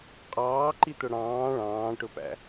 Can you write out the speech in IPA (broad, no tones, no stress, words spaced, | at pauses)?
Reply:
qʼɑːǃit̪ʊ ɽɑ̃ː ɭɑ̃ːʈʊpæ̰